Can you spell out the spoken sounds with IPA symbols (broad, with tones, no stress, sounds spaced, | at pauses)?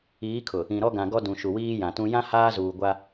iː˨˦ kʰ ʊ˨ | ĩ˨ ɾ ɔ˦ ɡ ã˨ ɡ ɔ˦ d ũ˨ ʃ u˨ w iː˦ j ã˨ t ũ˦ j ã˦ h aː˦ z uː˨ ɡʷ a˦